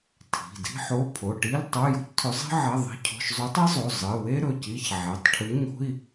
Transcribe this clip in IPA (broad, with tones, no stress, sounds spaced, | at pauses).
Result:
tʰ i̤˩˧˩ d i̤˥ ħ o˧˥˧ pʰ o˩˧˩ ʈ i˧˥˧ l tˤ o˧˥˧ j o̤˥ c tʰ ɵ˨˥ zˤ i̤˥ ʕ ɐ˧˥˧ ðˤ i̤˧˥˧ cʰ o̤˧˥˧ ʃ zˤ ʉ˨˥ tˤ i˥ zˤ o˩˧˩ zˤ ɨ˩˧˩ w e˥ ɾ ɵ˩˧˩ c i˧˥˧ ç ʕ e˩˧˩ tˤ ʈʰ ɨ˨˥ ɲ o̤˧˥˧ i̯